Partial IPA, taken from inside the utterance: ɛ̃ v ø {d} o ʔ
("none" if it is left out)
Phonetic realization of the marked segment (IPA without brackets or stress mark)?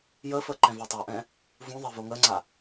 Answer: tˤ